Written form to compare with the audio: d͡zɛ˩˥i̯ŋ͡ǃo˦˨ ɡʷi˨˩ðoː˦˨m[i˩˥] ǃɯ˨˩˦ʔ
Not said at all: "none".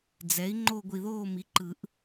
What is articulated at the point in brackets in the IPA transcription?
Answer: i˩˥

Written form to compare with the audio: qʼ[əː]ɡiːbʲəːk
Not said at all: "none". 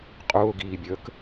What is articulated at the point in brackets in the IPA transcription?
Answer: ʊː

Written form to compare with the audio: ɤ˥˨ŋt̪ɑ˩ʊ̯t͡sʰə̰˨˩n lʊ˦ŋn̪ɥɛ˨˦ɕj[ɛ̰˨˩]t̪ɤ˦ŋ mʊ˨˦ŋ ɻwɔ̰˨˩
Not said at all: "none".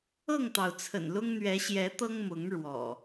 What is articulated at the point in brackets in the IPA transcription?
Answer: ɛ˨˦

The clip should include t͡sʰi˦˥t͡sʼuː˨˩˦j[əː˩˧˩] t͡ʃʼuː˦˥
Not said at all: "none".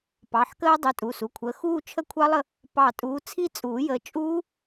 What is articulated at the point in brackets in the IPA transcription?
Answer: əː˨˦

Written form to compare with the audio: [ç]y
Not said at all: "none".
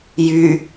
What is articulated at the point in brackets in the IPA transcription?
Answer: j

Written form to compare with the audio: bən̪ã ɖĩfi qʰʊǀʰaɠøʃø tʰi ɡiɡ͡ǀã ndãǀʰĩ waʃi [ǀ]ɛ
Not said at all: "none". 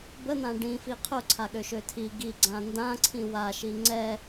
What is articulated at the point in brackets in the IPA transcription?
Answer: ŋ͡ǀ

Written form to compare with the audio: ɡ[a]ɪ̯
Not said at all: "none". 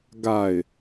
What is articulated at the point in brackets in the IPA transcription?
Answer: a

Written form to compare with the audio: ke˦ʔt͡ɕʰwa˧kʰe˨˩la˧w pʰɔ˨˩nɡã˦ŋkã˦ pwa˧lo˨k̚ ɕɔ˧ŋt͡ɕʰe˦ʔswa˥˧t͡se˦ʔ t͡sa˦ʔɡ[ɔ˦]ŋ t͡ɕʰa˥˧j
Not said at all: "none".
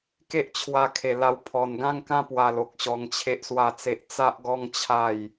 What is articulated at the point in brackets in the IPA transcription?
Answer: ɔ˦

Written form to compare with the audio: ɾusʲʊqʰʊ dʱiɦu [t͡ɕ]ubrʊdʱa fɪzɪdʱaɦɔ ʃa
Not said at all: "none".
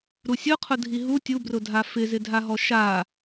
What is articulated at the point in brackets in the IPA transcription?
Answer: tʲ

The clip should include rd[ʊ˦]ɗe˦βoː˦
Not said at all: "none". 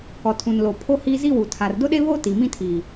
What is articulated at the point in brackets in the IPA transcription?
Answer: ʊ˦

